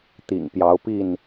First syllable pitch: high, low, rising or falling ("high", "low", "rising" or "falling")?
low